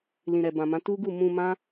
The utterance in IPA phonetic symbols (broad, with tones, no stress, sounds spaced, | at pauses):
l ĩ˨ ɾ ɛ˨ b ã˨ m ã˨˦ t u˦ ɡ u˦˨ m ũ˧ m ã˦